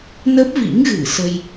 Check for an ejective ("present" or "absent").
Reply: absent